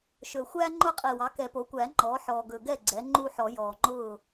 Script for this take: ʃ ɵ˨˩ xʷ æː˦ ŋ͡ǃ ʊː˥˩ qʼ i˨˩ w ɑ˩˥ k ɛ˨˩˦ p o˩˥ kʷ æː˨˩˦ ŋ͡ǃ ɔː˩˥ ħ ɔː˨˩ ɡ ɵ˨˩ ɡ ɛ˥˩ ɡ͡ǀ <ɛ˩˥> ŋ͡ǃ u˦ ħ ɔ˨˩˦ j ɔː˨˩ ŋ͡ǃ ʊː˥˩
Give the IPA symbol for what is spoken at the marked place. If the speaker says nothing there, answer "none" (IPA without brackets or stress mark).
ɛ˩˥